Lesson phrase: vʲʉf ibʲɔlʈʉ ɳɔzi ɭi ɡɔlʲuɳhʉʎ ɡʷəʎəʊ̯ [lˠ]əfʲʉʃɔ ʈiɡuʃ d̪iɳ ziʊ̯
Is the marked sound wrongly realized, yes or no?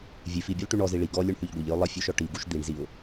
no